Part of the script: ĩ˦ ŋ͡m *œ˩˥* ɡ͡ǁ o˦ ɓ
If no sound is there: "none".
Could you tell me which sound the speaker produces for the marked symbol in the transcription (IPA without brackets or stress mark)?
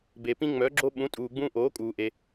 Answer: œ˩˥